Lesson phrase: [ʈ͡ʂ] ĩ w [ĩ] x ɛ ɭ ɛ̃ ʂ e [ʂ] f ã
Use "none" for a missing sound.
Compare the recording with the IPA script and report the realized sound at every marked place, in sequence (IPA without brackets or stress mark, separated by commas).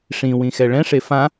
ʂ, ĩ, none